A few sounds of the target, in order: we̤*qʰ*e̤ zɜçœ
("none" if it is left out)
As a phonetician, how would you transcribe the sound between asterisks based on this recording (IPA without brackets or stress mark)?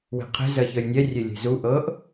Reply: qʰ